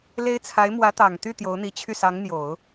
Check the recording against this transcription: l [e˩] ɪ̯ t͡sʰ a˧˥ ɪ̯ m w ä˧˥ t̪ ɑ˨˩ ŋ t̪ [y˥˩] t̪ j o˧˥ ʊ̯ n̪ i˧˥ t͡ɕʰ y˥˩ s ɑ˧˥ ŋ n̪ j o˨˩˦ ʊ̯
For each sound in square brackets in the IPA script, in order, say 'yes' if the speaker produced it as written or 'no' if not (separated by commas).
no, yes